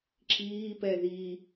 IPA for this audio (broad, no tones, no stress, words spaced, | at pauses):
ǁiːpɛ ði